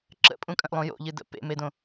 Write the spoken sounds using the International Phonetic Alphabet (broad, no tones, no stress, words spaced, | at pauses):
ǁə̰pʼũkʼə̃ʔlˠũ jo̰ʎɨdə̰ pḛmedõ